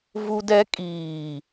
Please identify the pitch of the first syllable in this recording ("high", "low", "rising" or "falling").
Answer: high